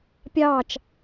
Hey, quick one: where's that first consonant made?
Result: lips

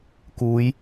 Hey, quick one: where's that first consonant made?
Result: velum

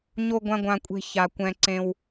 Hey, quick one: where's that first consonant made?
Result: palate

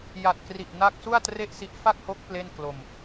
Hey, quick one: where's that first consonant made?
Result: palate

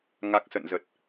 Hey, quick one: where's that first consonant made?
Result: velum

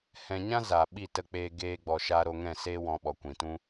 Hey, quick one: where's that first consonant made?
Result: throat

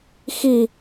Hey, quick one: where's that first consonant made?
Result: velum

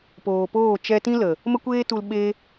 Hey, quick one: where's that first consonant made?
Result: lips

